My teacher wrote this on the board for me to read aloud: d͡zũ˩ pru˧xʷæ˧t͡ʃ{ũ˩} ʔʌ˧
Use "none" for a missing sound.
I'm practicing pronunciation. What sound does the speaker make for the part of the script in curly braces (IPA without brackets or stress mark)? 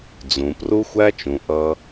ũ˩